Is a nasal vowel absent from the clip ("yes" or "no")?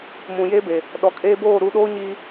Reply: no